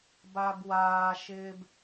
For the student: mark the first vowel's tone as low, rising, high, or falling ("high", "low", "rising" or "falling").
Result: low